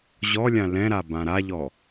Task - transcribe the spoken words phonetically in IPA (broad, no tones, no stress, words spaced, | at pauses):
ʑɔlʲã lɛ̃ɾa bãɾaʎɔ